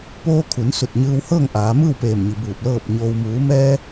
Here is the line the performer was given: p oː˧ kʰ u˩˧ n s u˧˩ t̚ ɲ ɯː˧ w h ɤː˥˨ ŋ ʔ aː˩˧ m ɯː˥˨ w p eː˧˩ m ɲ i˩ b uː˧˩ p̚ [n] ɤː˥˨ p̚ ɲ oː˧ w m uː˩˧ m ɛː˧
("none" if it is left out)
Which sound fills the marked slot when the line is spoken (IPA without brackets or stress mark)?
l